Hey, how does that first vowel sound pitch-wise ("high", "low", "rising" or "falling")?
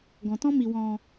low